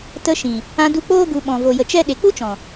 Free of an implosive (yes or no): no